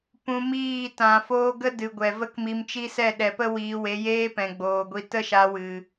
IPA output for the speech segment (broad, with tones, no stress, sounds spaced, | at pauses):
p ũ˧ m iː˦˨ t ã˨ f oː˦ ɡ ə˦ d ɨ˨ ɡʷ ɛ˨ v ə˦ k m i˧ m t͡ʃ i˦ s ɛ˦˨ ɗ ɛ˨ p ə˦ w iː˧ w e˨˦ j eː˦ p ɛ̃˨ ɡ͡b oː˨ ɡʷ i˧ t ə˦ ʃ a˧ w ɨ˨